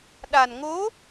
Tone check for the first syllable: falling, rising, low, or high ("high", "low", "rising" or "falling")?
low